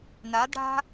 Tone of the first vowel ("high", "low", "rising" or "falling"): rising